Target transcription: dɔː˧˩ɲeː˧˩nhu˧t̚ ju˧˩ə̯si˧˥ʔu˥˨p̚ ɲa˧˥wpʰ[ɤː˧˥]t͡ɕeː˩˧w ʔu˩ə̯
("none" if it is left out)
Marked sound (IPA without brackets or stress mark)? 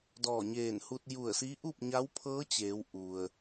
ɤː˧˥